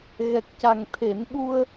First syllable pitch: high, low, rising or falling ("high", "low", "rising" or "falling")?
low